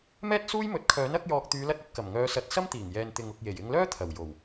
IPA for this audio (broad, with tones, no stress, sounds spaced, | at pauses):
m ɛː˥ t̚ s uː˥ j m ɵ˨˥ t̚ kʰ œː˨˥ n ɐ˧ k̚ j ɔː˨ k̚ t̪ yː˨˧ l ɐ˧ t̚ ɐ˧ t̚ k ɐ˨˩ m ŋ œː˨˧ s ɐ˨˥ t̚ s ɐ˥ m t̪ iː˨˩ ŋ j ɛː˨ n t̪ ɪ˨ ŋ ʊ˨ k̚ j e˨˩ j ɪ˧ ŋ l œː˥ t̪ʰ ɐ˨˩ w j o˨˩ w